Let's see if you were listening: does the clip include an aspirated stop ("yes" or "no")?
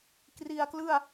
no